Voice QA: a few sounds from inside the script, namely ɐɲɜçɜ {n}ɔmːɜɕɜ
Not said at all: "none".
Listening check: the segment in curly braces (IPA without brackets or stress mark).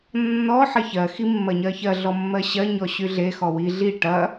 ɮ